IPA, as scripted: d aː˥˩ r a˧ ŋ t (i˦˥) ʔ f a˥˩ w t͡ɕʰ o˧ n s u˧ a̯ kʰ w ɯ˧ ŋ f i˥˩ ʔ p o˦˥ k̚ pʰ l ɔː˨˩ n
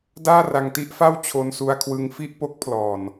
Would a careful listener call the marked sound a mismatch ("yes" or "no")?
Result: no